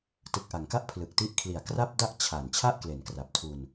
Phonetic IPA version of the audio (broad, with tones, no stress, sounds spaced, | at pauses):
t ɯ˨˩ k̚ ʔ a˩˦ ŋ k a˥˩ ʔ pʰ l ɯ˨˩ k̚ t i˦˥ ʔ kʰ l i˨˩ a̯ k r a˥˩ p̚ d a˥˩ ʔ t͡ɕʰ a˨˩ n t͡ɕʰ a˥˩ ʔ k l e˩˦ n k r a˨˩ p̚ tʰ u˧ n